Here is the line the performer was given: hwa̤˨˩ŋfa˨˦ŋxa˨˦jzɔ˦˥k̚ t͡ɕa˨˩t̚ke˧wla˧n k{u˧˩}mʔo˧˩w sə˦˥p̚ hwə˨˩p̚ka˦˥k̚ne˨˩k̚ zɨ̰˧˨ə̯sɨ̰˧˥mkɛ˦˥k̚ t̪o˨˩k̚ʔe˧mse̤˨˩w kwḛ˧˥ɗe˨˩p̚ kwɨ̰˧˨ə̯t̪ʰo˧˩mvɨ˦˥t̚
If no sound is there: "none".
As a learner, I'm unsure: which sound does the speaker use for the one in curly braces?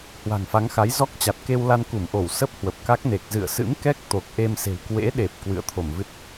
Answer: u˧˩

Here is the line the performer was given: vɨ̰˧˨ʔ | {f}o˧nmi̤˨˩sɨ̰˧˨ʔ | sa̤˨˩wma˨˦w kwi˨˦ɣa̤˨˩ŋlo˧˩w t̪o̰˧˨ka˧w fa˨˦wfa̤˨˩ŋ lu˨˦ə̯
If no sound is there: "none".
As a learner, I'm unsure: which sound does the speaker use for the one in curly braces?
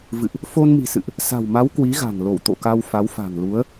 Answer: f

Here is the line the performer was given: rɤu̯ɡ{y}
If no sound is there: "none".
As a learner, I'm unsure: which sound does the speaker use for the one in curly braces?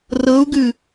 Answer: ɨ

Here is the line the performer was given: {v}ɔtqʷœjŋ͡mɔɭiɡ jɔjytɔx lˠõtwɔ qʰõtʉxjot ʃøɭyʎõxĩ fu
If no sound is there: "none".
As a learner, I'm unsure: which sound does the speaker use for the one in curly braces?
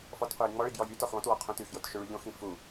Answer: f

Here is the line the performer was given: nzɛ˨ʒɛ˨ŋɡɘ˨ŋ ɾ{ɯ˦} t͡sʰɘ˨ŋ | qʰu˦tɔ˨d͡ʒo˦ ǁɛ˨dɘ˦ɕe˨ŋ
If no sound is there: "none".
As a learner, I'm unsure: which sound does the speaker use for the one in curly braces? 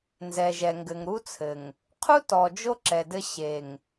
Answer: u˦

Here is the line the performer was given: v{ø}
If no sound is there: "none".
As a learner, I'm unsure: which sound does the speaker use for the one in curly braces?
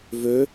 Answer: ø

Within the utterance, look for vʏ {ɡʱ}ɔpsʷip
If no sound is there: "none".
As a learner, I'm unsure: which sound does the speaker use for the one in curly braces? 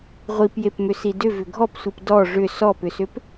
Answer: ɡʱ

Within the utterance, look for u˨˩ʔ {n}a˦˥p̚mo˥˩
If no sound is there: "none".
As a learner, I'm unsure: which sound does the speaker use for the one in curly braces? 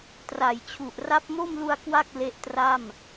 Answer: r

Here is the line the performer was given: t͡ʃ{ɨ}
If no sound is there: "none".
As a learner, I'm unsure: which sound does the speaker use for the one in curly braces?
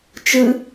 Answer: ɨ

